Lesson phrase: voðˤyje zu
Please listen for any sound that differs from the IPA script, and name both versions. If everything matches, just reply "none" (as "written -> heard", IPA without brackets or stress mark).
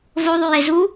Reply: none